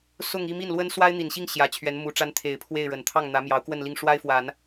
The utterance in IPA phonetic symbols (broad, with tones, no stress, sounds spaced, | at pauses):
s ʊ˥˧ ŋ i˥˧ m i˥˩ n l w ə˥ n s w a˥ ɪ̯ n̪ i˨˩ n ɕ i˥˩ ŋ ɕ j ä˨˩ t͡ɕʰ ɥ ɛ˧˥ n m u˧˥ ʈ͡ʂ a˥ n t̪ʰ e˨˩ ɪ̯ pʰ w e˥˩ ɪ̯ ɻ ə˨˩ n t̪ʰ ɑ˥˩ ŋ n̪ ä˧˥ m j ɑ˧˥ ʊ̯ k w ə˥˧ n l i˥˩ ŋ ʂ w a˥ ɪ̯ f w a˨˩˦ n